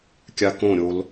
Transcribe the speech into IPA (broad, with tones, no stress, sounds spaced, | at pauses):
kʲ a˧ k õ˦˨ ɾʲ o˧ l